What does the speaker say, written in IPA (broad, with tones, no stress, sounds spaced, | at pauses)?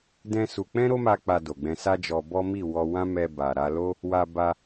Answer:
d ɛ̃˦ s u˧ k͡p ɛ̃˦ ɾ o˦ m a˦ k͡p a˧ d o˨ ɡ͡b ɛ̃˧ s a˦ d͡ʒ ɔ˧ b ɔ˦ m i˦˨ w ɔ˧ w ã˦ m ɛ˧ b a˨ ɾ a˧ l o˦ | w a˧ b a˧